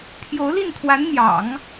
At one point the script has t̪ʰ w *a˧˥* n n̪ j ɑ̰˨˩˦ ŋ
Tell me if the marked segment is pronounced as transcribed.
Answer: yes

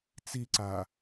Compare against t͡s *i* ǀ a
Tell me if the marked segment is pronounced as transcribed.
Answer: yes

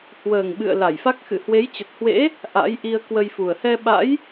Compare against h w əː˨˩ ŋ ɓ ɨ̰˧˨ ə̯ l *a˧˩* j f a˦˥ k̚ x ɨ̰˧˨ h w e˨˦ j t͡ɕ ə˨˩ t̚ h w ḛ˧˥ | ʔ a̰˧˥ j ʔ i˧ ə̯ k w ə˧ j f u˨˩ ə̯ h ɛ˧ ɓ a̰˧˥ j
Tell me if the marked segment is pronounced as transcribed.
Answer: yes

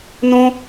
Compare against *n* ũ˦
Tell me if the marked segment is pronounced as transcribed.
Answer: yes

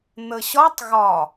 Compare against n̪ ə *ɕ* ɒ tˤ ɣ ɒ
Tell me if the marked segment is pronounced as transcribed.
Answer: yes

